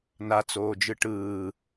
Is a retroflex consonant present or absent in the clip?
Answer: present